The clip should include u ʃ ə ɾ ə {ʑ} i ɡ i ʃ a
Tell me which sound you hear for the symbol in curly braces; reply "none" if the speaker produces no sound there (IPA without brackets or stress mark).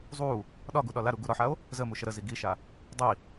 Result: z